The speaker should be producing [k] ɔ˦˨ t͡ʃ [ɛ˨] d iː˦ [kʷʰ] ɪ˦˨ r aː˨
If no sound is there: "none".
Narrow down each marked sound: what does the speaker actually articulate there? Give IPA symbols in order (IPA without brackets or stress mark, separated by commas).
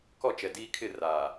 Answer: k, ɛ˨, kʰ